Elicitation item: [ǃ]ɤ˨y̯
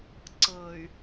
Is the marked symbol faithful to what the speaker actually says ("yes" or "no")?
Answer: no